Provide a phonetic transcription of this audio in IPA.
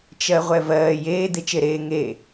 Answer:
t͡ʃ ɜ ʁʷ ɛ v ɜː j eː d̪ e t͡ʃ e ɾ eː ŋ e

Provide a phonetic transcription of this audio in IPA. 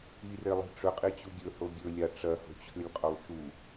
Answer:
i r e lˠ i̤ ʈ͡ʂ ɵ qʼ i t͡ɕ u ɡʲ ɵ h o ɡʲ ɵ lʲ a ʈ͡ʂ ɐ h o̤ t͡ɕʰ ʉ lʲ qʼ o lˠ ʃ u

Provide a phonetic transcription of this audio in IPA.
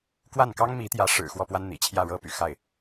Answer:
k w a˥˩ n k ɑ˥ ŋ m i˧˥ t̪ j ä˧˥ ʂ ɻ̩˨˩ x w ɔ˥˩ p w a˥ n n̪ ḭ˨˩ t͡ɕʰ j ä˥˩ ɻ ɤ˥ p y̰˨˩ x a˥˩ ɪ̯

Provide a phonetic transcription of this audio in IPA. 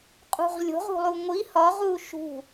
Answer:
qʼ ṳ ʁ lʲ o̤ ʁ ṳ lˠ u ŋʷ i h ɒ ʁ u ʃ ṳ

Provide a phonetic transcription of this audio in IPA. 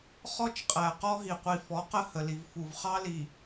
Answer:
χ ɔ˦ t͡ʃ qʼ æ˨ q ɔ˦ ɦ i˨ qʷ i˨ f ɔ˨˦ q ə˦ h ə˨ l i˨ v f u˨ v χ ɑ˦ l i˨

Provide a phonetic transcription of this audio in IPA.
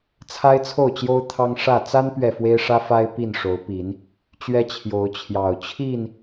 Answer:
t͡sʰ a˦ ɪ̯ t͡sʰ o˥˨ ʊ̯ t͡ɕ j o˦ ʊ̯ t̪ʰ ɑ˦ ŋ ʂ ä˥˨ t͡s a˦ n p ɥ ɛ˨ f w e˦ ɪ̯ ʂ ä˦ f a˦ ɪ̯ p i˥˨ n ʂ o˨˦ ʊ̯ p i˨˦ n | t͡ɕ ɥ ɛ˦ t͡ɕʰ j o˨˦ ʊ̯ t͡ɕʰ j ɑ˨˩ ʊ̯ t͡ɕʰ i˥˨ n

